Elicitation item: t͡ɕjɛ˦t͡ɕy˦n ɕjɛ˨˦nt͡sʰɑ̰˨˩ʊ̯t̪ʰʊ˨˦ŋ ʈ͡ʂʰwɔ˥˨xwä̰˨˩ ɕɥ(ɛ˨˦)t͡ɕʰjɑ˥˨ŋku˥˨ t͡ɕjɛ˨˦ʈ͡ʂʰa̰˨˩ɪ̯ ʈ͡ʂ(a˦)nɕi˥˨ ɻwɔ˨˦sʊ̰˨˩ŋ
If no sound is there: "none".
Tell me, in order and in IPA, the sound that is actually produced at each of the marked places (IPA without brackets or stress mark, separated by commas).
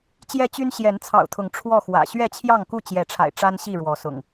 ɛ˥˨, a˦